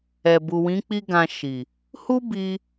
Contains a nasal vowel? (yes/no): yes